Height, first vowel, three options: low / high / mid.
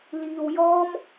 high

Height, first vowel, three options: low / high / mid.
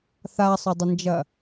low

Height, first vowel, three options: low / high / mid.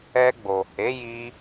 mid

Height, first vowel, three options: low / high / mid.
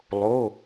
mid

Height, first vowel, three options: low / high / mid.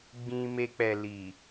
high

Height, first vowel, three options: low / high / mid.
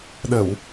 mid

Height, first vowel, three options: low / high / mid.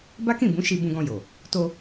low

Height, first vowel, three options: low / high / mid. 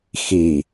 high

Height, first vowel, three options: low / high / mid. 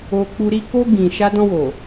mid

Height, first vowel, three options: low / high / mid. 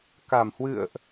low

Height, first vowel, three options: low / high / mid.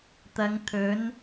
low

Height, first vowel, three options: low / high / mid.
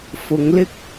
high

